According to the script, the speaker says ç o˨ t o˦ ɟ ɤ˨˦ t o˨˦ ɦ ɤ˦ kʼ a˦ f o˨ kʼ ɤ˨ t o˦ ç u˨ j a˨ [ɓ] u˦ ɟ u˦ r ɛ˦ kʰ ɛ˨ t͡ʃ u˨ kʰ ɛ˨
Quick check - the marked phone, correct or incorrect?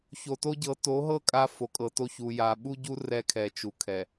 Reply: correct